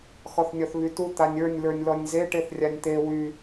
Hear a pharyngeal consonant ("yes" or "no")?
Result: no